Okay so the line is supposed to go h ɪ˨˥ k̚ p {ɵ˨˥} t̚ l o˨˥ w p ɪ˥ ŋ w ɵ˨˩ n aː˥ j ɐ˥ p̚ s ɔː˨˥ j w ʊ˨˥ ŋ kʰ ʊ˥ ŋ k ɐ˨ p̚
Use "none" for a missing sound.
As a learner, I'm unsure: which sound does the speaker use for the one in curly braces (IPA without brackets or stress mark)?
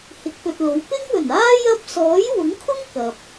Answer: ɵ˨